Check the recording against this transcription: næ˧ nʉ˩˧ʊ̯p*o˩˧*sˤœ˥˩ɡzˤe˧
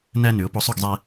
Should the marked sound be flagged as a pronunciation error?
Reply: yes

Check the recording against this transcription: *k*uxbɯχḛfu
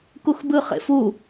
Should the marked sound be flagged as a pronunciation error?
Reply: no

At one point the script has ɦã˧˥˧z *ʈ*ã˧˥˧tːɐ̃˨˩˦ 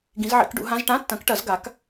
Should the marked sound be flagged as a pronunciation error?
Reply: no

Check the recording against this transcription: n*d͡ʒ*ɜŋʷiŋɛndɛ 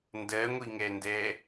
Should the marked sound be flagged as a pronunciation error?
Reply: yes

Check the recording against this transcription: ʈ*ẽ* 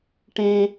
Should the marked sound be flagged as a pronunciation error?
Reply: no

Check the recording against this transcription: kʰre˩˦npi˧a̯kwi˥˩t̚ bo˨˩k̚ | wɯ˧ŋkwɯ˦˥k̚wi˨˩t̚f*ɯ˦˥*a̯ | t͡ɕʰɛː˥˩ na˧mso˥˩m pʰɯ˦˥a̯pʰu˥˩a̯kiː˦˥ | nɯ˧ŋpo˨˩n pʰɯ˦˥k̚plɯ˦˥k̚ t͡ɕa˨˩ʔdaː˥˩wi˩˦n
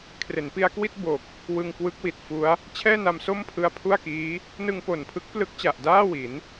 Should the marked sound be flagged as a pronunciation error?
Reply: yes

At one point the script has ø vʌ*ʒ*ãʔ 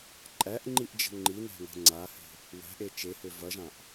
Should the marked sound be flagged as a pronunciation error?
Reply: no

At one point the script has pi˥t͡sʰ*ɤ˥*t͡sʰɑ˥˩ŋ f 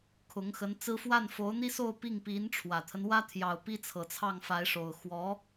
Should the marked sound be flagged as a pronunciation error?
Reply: yes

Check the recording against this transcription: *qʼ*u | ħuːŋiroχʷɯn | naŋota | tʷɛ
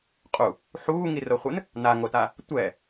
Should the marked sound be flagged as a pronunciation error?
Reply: no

